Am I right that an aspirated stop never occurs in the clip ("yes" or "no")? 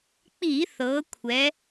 no